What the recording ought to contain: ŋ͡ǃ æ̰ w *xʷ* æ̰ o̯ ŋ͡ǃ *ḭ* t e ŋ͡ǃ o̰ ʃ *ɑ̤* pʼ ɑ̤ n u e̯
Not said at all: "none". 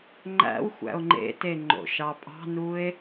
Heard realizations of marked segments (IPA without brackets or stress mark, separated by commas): xʷ, ḛ, ɑ